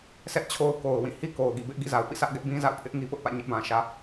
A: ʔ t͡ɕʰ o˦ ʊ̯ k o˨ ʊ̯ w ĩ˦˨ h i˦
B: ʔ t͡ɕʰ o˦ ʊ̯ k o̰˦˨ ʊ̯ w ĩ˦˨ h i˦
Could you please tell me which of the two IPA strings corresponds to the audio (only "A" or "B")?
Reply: A